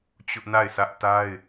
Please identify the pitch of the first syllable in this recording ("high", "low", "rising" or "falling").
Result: high